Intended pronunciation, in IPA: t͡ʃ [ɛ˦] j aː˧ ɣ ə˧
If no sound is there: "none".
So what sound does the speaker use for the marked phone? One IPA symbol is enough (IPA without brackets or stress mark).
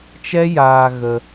ɛ˦